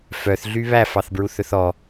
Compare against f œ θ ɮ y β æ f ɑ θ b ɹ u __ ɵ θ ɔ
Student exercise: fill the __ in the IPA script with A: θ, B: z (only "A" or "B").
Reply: A